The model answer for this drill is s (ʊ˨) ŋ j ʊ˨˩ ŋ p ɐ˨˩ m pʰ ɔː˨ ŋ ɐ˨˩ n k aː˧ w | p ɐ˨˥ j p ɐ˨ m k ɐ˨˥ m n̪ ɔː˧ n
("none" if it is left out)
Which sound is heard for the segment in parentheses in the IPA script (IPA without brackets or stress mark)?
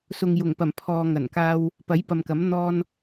ʊ˨